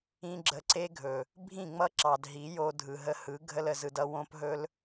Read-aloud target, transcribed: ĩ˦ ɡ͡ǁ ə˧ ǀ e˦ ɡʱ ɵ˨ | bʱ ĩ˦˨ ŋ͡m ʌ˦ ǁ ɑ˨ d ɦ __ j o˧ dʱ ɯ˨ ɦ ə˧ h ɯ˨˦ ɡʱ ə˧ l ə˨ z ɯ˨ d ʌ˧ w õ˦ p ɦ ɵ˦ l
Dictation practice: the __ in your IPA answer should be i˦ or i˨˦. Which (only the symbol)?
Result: i˨˦